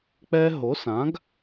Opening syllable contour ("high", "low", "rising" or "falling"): high